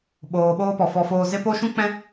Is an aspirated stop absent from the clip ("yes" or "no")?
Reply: yes